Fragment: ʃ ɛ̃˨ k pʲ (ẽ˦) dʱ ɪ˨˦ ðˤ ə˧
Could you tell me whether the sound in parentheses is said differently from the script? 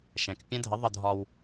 yes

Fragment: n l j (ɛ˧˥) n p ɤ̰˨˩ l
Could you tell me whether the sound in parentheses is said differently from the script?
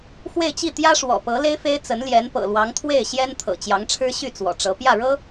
no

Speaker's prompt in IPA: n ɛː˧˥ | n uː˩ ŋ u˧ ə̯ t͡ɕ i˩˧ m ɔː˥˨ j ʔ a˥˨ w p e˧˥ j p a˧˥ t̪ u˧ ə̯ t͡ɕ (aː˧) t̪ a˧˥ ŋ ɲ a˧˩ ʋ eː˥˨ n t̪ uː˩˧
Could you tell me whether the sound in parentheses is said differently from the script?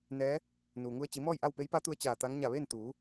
yes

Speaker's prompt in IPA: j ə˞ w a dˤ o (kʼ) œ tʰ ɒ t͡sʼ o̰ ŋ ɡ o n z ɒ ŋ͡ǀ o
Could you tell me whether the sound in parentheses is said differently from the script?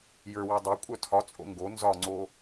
yes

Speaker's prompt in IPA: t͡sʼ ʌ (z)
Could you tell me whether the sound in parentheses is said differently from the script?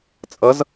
no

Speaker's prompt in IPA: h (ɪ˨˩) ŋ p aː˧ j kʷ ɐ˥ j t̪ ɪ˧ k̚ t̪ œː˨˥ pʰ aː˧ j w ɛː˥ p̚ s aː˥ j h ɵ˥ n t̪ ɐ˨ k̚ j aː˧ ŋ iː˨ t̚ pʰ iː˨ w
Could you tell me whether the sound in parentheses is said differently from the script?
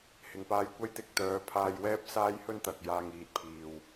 yes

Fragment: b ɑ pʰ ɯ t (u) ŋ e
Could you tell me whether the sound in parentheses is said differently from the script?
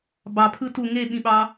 no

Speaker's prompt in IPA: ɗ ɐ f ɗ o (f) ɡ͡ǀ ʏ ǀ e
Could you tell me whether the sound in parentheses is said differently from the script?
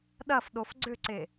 no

